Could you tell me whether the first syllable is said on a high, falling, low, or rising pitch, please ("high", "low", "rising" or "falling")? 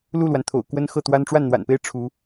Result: falling